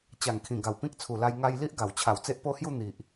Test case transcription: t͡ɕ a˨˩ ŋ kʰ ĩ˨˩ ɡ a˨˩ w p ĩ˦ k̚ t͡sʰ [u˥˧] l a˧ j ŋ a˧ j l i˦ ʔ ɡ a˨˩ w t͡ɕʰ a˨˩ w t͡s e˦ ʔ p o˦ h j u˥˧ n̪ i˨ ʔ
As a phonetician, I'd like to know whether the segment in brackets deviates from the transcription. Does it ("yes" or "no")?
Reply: yes